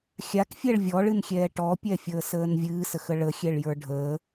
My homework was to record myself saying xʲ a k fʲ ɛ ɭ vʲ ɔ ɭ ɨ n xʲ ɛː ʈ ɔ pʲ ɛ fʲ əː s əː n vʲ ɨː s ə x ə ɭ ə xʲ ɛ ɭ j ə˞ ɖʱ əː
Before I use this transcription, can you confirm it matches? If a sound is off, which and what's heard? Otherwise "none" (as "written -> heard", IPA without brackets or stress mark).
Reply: none